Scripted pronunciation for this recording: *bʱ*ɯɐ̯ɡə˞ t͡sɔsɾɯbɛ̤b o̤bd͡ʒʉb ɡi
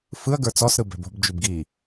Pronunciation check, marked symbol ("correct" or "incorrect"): incorrect